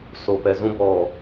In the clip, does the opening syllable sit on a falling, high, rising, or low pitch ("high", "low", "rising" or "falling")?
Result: low